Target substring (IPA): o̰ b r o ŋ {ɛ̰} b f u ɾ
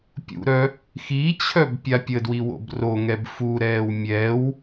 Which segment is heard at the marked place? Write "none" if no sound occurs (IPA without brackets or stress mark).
ɛ